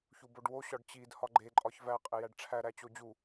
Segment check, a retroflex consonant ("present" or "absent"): present